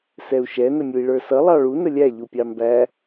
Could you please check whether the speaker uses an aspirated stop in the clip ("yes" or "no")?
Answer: no